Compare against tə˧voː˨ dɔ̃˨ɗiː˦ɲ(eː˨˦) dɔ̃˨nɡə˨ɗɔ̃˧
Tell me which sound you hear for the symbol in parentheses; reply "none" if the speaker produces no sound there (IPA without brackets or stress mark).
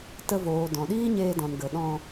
eː˧